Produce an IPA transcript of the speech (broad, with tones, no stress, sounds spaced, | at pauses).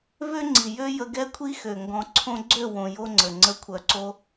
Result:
v ø˦ ŋ͡ǀ i˨ j ø˦ j ə˧ ɡ ɛ˦ kʷʰ i˦ x ø˨ ŋ ɡ ɔ̃˧ ǀʰ õ˦ ɡ͡ǀ ø˦˨ w õ˨ j o˦ ŋ͡ǀ ə˨ ŋ͡ǀ ə˨˦ kʷʰ œ˨ ǀ o˧